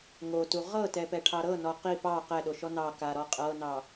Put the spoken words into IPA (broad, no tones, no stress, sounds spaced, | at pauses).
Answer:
ŋ o t u ʁ ɤ t ɛ p ɛ ʈʰ ɑ ɾ ɤ n ɔ q i p ɑ q ɛ ɗ o ʃ ɔ n ɑ k a ɾ ɔ qʼ ɤ n ɑ